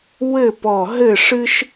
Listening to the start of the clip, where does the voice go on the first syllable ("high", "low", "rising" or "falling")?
falling